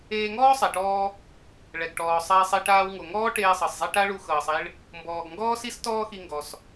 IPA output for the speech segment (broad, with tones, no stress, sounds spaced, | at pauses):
eː˧ ŋ ɔː˥ sˤ ɛ˩ ʈ ɔː˧ | ɭ ɛ˩ ɡ ʈ ɔː˩ sˤ ɛː˧ sˤ i˧ ʈ aː˧ w ŋ o˩ ŋ ɔː˥ ʈ eː˧ sˤ ɤ˩ sˤ zˤ i˧ ʈ a˥ ɭ u˧ x ɤː˩ sˤ i˧ ɭ | m b ɔː˩ ɡ ŋ ɡ ɔː˥ s i˥ s t ɔː˥ x i˧ ŋ ɡ ɔ˩ s